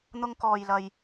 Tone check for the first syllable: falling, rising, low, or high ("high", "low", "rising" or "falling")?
high